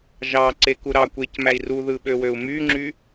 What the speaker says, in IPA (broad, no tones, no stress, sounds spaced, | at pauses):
ʒ ɑ ǀ e k u ɾ ɑ kʷ e c m æ i̯ r u ð ɯ ɓ ø w ø u̯ m y ŋ͡ǁ y